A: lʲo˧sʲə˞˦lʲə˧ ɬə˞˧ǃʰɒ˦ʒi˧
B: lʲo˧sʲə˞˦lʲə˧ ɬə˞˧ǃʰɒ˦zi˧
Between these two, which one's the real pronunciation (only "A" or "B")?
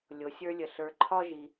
A